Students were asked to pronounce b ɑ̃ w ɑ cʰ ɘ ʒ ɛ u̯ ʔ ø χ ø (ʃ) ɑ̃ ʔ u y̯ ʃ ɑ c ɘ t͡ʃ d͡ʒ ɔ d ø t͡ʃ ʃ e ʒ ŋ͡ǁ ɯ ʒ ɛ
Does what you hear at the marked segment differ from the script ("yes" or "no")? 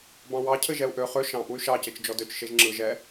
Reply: no